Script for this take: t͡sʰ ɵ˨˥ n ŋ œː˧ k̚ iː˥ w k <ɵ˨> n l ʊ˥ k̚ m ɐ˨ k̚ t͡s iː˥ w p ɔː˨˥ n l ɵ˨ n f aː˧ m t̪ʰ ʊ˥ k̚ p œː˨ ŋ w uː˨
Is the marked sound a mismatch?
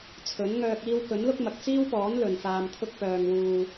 yes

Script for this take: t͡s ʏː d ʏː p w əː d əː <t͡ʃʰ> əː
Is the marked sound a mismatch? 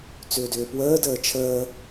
no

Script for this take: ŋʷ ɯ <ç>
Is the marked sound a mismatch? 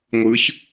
no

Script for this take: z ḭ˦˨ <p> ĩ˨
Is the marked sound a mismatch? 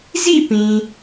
no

